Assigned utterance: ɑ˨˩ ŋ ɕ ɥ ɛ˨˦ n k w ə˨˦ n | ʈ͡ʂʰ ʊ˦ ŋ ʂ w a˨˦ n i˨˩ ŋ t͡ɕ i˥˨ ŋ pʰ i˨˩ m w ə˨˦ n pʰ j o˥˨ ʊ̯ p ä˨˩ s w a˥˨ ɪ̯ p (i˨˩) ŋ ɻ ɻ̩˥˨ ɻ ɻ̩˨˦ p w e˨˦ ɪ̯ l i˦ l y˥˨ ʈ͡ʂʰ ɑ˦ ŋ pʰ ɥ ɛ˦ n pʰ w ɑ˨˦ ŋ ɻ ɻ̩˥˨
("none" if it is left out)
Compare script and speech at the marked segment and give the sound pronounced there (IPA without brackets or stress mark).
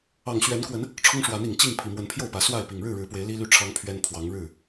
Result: i˨˩